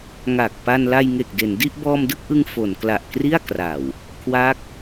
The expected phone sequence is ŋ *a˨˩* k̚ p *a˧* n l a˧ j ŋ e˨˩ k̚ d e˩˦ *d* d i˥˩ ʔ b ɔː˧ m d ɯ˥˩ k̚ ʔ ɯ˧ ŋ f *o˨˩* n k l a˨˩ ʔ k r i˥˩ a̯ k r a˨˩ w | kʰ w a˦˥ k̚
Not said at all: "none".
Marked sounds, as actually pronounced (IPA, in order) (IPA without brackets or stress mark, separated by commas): a˨˩, a˧, n, o˩˦